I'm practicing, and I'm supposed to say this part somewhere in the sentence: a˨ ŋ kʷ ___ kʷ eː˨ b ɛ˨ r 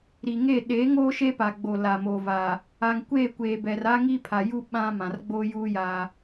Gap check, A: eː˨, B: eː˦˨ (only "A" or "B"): B